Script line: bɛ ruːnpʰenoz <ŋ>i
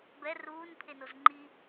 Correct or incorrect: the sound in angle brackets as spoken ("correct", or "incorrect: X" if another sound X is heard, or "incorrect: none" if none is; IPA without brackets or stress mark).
incorrect: ŋ͡ǃ